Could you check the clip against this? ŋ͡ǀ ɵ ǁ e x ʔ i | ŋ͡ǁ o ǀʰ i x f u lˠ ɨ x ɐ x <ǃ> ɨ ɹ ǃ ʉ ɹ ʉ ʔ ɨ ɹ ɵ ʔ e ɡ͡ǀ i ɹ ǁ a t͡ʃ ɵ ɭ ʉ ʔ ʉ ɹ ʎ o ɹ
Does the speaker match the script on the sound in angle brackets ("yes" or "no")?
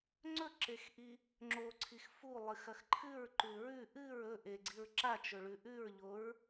no